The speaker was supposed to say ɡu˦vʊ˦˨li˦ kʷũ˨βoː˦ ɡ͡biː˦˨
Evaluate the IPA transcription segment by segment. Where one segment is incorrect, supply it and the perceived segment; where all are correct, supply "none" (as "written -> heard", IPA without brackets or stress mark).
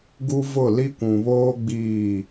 none